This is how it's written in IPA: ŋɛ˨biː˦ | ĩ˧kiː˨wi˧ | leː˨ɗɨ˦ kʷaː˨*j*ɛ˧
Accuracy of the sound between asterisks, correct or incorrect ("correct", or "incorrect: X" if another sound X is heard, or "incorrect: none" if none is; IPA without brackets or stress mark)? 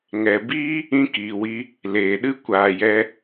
correct